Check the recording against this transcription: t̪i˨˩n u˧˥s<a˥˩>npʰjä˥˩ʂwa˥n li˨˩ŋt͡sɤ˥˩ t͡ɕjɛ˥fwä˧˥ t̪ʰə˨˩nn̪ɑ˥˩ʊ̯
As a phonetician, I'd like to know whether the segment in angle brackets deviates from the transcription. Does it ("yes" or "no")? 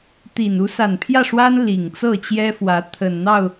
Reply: yes